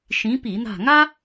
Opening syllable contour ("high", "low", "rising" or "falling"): rising